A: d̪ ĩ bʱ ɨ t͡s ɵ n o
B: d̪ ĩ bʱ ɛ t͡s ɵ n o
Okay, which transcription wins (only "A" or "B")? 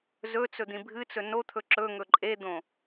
A